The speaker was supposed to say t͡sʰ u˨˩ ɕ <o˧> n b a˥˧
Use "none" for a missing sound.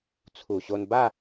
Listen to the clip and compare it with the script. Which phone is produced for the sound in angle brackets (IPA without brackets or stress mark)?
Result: o˧